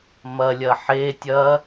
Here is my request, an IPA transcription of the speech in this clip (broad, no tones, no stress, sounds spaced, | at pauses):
m ɐ lʲ ɐ ħ e tʲ ɐ